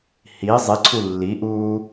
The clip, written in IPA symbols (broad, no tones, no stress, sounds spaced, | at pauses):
h i zˤ i ǀʰ u lː i ʔ uː